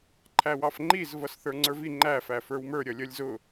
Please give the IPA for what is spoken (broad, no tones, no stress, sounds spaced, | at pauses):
ǃʰ æ w ɑ f ŋ͡ǃ i z v ʌ s θ ə˞ ŋ͡ǀ ə˞ v i ŋ͡ǃ æ f æ f ə˞ w m ə˞ ɾʲ ʌ lʲ ʌ lʲ z ʊ